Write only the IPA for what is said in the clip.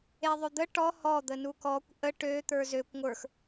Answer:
eðˤød̪ə ʈɔ hɔ d̪ənukɔkʷ ʔə ʈø t̪ə˞zøkʷ ŋʷə˞x

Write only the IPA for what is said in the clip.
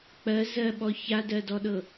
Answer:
k͡pɜ zɜɓɔ çadɜdɔɗɤ

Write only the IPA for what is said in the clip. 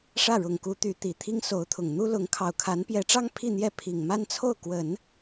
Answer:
ʂä˥˩ɻʊ˨˩ŋku˧˥ t̪y˧˥t̪i˨˩ t̪ʰi˥ŋso˧˥ʊ̯t̪ʰʊ˨˩ŋ n̪u˥lʊ˧˥ŋ kʰɑ˨˩ʊ̯kʰa˧˥npjɛ˧˥ʈ͡ʂɑ˥ŋ pʰi˥˧n̪jɛ˥˩ pʰi˨˩ŋma˥nt͡sʰo˥˩ʊ̯kwə˨˩˦n

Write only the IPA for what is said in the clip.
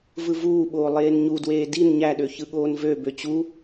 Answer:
vɯvuːɓoː lˠeːnɲudweː din ɲæɗø çɯɠoːnvøbø t͡ɕu

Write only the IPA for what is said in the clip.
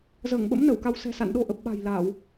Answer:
zəː˧˩ŋɓə̰˧˥m nə˧˩wka˧w sɛ̤˨˩sa̰˧˨nɗo˧ ʔə˨˩p̚ɓa̤˨˩j la˧˩˨w

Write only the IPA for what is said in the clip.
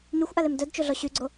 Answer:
ɲyxʷʔalem dœdt͡ʃoɮɔ ɕyɡ͡ǀo

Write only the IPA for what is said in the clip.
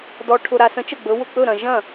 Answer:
dɔ˨ ʈʰʊ˨ɾa˨sə̃˨˥ t͡ʃə˥˩ɡ͡bɵ˨˥wʊ˥˩ k͡pɵ˥˩ɾɐ̃˨ ʒɐ̃˥˩

